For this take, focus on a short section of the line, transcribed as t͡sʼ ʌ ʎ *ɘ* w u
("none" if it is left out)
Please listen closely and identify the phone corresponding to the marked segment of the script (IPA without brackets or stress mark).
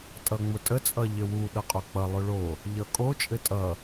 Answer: ɘ